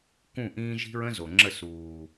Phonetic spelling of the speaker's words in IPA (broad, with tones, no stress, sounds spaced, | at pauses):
k ũ˦˨ ʔ ĩː˦ ʒ i̤˦ ɹ ə̃˦ z o˨ ŋ͡ǁ ə˦˨ s uː˨